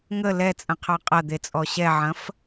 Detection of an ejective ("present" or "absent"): present